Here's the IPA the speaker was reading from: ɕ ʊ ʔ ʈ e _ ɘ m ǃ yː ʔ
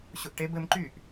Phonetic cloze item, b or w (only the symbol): b